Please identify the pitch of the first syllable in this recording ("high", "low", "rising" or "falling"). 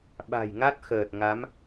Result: low